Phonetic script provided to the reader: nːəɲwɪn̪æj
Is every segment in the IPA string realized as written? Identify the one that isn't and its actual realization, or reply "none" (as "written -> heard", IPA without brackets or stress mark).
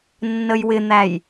ɲ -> j